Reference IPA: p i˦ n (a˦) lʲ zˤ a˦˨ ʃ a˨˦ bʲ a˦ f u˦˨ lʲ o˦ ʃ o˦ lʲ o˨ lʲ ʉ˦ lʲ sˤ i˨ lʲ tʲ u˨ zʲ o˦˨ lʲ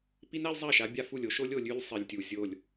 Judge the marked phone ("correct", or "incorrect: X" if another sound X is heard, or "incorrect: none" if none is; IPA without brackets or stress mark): correct